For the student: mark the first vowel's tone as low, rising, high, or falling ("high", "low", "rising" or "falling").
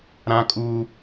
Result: high